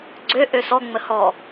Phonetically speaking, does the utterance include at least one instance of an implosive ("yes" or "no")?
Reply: no